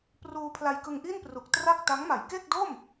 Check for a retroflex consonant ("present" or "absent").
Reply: absent